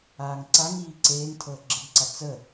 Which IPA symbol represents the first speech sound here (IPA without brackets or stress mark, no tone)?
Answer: aː